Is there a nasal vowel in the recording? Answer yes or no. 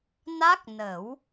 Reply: no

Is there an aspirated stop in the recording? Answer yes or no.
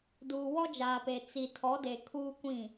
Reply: yes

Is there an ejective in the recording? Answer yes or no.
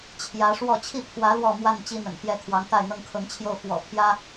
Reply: no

